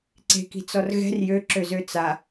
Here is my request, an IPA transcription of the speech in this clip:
ǀ e̤ k i̤ t͡s ɔ r ɣ ɛ̤ r j ø ǁ ø z ø t͡s a

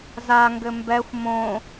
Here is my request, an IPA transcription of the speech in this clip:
z a ŋ ɡ ɘ m b ɛ xʷ m õ

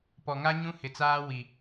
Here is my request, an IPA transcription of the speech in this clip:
p ɔ˨ ŋ a˦ ɲ ũ˦ h ɪ˨ t͡s aː˦ w i˨

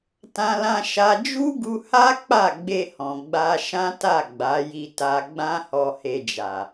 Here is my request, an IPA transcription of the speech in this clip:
t ã˦ l ã˦ ʃ a˦ d͡ʒ u˦ ɡ u˧ h a˦ k͡p a˦˨ ɡ͡b e˧ h ɔ̃˨ ɡ͡b a˧ ʃ ã˦ t a˦˨ ɡ͡b a˨˦ j i˧ t a˧ ɡ͡b ã˦ h ɔ˧ h e˧ d͡ʒ a˨

